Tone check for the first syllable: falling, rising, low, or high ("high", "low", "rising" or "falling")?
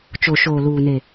low